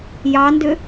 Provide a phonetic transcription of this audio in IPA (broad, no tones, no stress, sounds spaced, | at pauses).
j ɑ n d ʏ